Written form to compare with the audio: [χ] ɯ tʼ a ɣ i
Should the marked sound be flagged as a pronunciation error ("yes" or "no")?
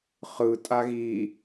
no